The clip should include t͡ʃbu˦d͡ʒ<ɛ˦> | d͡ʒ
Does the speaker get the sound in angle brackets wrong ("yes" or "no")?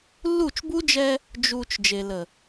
no